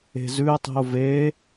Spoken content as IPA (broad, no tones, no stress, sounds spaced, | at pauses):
e̤ z ʉ e̯ tˤ i̤ o̯ v e